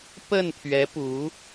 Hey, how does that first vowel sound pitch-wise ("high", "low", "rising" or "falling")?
falling